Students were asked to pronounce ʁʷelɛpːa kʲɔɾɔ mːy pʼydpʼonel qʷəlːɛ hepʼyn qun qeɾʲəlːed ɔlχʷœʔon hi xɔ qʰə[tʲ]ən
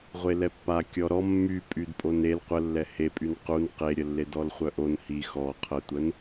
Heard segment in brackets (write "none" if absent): tʷ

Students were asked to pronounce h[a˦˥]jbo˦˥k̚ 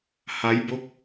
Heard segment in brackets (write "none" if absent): a˦˥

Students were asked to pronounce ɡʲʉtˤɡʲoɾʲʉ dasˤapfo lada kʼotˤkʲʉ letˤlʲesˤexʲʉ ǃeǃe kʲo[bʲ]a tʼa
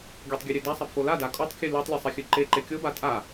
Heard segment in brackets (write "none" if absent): b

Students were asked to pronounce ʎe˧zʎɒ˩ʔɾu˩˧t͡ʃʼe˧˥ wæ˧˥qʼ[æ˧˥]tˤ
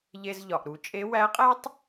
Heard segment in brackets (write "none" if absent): æ˥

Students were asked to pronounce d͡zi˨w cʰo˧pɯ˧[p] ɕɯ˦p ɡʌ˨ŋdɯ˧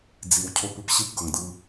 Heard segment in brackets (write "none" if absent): p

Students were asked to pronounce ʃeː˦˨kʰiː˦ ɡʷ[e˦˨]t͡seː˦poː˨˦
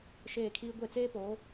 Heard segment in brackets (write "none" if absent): e˦˨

